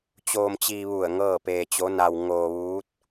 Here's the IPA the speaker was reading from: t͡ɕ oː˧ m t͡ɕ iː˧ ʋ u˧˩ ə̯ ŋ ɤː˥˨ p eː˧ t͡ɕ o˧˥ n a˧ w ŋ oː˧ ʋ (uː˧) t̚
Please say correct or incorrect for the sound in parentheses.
incorrect